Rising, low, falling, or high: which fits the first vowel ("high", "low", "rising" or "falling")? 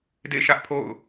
falling